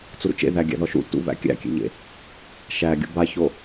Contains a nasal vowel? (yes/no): no